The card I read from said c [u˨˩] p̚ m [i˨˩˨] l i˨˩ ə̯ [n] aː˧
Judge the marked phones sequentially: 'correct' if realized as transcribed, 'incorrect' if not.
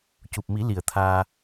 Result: correct, incorrect: i˨˩˦, incorrect: t̪ʰ

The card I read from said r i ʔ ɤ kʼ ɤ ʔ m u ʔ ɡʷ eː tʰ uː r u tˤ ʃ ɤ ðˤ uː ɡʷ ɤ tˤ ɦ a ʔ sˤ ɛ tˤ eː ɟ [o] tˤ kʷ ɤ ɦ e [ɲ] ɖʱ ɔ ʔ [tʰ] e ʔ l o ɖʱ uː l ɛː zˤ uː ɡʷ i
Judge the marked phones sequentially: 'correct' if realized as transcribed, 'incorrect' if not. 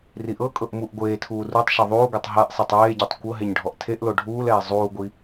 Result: incorrect: ɤ, correct, correct

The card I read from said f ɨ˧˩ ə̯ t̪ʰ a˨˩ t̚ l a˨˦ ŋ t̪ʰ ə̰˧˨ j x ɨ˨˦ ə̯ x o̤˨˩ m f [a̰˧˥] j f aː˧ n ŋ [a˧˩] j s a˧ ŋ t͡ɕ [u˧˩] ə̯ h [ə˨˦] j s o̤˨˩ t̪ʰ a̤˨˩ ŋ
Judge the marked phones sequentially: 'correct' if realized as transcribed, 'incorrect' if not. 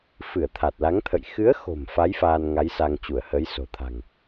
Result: incorrect: a˨˦, incorrect: a˨˦, correct, correct

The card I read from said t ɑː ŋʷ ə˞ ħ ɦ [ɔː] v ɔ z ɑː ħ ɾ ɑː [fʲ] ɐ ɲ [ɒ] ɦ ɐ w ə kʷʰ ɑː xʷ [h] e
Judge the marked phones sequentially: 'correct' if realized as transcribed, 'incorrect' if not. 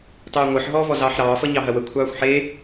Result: correct, incorrect: f, incorrect: ɑ, incorrect: ħ

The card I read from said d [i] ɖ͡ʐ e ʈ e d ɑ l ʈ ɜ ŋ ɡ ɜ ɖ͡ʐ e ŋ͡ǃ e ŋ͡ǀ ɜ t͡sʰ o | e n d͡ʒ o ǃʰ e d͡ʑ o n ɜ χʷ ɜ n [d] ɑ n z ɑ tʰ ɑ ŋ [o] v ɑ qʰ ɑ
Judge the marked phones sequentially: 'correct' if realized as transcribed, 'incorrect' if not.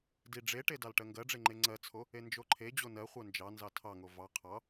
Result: correct, incorrect: d͡ʒ, correct

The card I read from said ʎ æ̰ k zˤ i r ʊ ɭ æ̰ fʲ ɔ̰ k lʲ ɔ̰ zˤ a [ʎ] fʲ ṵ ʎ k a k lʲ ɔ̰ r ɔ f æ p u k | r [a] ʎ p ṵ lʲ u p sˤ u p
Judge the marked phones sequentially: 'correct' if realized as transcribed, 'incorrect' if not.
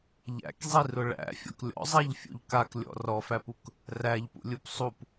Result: correct, incorrect: æ

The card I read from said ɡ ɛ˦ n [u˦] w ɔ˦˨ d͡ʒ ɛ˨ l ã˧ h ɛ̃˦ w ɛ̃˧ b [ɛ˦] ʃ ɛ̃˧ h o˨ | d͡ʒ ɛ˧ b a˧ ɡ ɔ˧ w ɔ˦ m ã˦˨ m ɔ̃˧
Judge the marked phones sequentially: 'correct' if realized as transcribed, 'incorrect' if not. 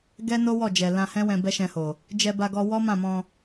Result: incorrect: o˦, correct

